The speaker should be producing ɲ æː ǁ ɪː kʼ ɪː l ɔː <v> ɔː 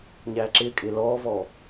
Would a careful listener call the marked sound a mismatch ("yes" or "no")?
no